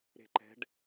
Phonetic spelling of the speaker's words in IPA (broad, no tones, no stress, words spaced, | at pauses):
ɾe̤ǃɛ̤ɖ